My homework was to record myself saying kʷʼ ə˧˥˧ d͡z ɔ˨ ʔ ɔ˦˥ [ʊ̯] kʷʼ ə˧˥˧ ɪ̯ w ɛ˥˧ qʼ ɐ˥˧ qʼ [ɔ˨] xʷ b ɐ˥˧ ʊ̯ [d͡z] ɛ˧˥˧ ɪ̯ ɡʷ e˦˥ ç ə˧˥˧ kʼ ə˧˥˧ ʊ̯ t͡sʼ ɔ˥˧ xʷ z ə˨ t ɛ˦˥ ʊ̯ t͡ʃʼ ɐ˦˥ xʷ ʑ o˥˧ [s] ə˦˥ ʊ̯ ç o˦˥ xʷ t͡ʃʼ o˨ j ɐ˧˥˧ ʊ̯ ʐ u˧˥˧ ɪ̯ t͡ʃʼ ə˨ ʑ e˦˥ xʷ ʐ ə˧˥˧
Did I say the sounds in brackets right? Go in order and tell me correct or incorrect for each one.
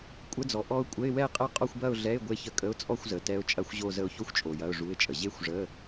correct, incorrect: ɔ˥˧, incorrect: ɮ, incorrect: z

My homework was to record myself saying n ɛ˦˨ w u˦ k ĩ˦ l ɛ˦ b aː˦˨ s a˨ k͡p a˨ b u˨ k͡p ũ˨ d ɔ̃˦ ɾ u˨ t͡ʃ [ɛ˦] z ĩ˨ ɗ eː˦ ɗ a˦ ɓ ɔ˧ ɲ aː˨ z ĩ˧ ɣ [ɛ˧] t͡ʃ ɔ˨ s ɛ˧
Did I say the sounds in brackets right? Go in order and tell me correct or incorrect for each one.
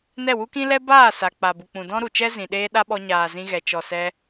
correct, incorrect: ɛ˨

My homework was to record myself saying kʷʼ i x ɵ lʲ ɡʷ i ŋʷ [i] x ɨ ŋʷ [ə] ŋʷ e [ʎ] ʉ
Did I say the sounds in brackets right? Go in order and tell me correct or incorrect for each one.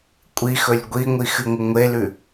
correct, incorrect: ɐ, incorrect: l

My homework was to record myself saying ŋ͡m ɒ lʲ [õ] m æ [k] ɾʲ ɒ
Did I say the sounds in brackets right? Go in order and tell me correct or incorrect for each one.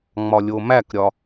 incorrect: o, correct

